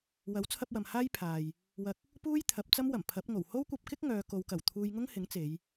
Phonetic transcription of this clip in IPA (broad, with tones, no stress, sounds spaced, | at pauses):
w ɐ˨˥ w t͡sʰ ɐ˧ p̚ w ɐ˨ m h aː˥ j pʰ aː˨ j | w ɐ˧ k̚ | p uː˥ j t̪ʰ ɐ˨˥ p̚ t͡s ɐ˥ m w ɐ˨˩ m pʰ ɐ˨˥ p̚ ŋ o˨˩ w h o˥ w kʷ ɐ˧ p̚ k ɪ˥ k̚ ŋ œː˨˧ k o˨˧ w k ɐ˨˩ w t̪ʰ uː˧ j ŋ ʊ˥ ŋ h ɪ˨˥ ŋ t͡s e˨˧ j